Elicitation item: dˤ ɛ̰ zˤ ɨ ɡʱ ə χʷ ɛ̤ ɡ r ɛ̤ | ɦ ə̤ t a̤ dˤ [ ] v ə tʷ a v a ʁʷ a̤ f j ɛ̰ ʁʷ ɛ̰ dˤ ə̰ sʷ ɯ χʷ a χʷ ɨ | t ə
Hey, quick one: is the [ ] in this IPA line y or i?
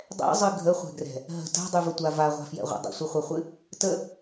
y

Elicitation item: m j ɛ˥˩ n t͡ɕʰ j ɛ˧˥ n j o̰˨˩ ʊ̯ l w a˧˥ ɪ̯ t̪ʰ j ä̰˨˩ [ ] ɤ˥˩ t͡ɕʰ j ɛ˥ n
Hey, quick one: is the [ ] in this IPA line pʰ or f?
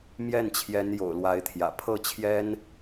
pʰ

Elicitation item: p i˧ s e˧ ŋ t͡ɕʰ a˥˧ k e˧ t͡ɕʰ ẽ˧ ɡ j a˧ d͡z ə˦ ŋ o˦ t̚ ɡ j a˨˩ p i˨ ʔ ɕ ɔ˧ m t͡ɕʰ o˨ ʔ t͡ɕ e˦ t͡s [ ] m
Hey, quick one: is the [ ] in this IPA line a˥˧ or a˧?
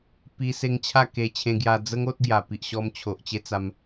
a˧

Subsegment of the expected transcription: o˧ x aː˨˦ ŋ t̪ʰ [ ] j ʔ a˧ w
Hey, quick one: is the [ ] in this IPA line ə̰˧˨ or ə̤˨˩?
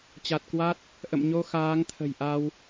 ə̤˨˩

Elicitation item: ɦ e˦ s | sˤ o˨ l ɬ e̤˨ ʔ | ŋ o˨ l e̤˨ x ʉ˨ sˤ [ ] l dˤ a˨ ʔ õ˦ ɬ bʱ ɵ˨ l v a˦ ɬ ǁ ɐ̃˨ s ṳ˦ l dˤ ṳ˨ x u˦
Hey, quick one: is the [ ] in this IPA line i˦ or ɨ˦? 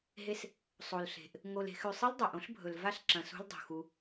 ɨ˦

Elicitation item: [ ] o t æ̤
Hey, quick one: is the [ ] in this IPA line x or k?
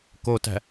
k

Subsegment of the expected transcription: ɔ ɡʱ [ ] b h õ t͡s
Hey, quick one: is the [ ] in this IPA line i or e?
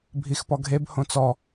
e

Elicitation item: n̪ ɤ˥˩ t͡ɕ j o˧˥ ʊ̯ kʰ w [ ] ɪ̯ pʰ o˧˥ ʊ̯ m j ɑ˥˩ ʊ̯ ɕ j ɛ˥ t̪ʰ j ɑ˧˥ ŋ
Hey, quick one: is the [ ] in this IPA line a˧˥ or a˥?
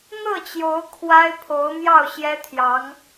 a˥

